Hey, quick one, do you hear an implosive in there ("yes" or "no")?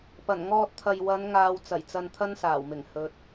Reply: no